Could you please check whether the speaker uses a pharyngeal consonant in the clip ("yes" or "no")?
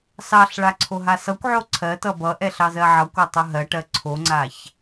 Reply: yes